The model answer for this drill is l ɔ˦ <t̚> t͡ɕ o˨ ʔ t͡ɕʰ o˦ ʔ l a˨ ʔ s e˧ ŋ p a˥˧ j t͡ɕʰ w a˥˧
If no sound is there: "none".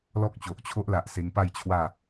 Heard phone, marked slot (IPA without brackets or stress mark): k̚